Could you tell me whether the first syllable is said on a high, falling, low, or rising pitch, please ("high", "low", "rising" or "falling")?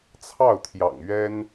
falling